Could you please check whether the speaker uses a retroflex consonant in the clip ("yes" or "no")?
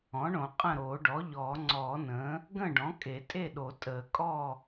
yes